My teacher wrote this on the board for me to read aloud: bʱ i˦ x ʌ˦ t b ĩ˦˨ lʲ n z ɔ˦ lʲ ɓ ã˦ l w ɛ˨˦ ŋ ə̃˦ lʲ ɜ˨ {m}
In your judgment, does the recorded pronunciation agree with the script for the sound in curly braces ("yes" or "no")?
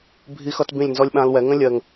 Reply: no